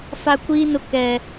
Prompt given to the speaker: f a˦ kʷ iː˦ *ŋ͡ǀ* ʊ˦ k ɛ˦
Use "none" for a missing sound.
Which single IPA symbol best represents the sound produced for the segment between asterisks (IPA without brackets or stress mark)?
n